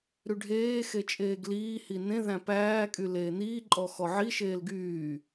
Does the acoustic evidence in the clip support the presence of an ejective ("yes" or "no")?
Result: yes